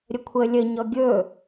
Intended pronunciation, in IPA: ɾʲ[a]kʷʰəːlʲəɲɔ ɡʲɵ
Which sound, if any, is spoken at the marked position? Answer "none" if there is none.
ə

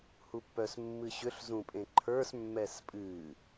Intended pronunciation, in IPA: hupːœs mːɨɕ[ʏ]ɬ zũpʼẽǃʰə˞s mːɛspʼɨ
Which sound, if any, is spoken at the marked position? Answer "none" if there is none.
ʏ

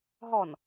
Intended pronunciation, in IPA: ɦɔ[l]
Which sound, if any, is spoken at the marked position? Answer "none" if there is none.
n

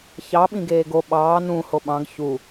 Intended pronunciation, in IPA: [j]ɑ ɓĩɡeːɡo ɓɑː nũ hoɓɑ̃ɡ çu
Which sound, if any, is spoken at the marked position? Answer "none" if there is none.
ç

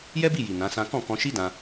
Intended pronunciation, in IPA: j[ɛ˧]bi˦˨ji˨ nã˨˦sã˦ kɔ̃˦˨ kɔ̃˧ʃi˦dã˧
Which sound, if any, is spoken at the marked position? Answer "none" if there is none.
ɛ˦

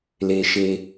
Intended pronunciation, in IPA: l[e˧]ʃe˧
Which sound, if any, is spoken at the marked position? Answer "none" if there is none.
e˧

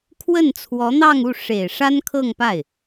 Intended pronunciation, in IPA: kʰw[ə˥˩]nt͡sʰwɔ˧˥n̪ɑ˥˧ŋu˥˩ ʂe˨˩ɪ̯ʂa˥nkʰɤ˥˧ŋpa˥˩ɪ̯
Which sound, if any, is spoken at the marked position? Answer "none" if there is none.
ə˥˩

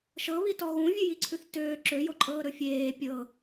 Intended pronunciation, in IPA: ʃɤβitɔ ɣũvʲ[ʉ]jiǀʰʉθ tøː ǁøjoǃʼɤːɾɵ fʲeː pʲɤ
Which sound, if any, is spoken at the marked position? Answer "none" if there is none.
ʉ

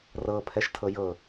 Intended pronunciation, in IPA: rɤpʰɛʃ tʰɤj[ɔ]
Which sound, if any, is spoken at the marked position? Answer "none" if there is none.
ɤ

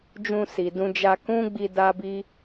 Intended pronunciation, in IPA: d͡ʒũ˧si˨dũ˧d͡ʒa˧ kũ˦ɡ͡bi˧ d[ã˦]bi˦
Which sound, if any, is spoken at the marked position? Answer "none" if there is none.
a˦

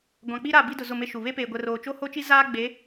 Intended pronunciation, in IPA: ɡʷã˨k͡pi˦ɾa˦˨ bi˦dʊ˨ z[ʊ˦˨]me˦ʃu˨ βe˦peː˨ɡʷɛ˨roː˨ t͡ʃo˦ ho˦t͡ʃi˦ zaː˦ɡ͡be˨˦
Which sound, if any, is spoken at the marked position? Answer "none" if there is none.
ʊ˦˨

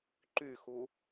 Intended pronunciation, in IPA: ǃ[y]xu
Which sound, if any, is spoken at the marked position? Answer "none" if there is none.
y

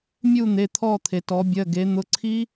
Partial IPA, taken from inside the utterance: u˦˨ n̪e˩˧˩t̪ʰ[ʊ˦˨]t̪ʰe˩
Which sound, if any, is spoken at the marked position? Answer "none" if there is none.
ɔ˦˨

